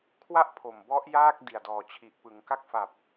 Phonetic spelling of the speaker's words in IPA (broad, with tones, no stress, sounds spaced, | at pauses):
kʰ w a˥˩ ʔ pʰ o˨˩ m b ɔ˦˥ ʔ j aː˥˩ k̚ d i˨˩ a̯ d ɔː˨˩ t͡ɕʰ i˨˩ ʔ p ɯ˩˦ ŋ k a˦˥ k̚ f a˨˩ p̚